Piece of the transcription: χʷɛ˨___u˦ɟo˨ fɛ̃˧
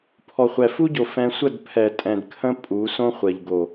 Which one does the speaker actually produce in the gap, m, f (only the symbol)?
f